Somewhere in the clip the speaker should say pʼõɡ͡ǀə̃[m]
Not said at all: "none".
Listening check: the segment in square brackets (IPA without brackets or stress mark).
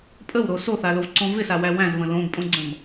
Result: m